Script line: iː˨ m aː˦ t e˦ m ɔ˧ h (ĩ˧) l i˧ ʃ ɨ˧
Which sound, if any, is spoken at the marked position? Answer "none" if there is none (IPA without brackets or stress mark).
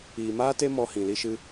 ĩ˨